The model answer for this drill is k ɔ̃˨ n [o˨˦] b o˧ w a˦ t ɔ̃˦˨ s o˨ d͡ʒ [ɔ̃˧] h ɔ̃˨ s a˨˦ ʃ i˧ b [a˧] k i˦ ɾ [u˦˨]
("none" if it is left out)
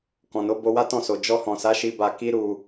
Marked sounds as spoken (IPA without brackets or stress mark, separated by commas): o˨˦, ɔ˧, a˧, u˧